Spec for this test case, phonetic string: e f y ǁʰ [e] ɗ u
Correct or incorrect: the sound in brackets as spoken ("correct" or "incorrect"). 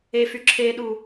correct